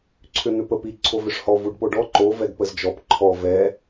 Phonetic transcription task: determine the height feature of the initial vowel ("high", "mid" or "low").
high